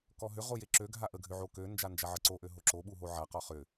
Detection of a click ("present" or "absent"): present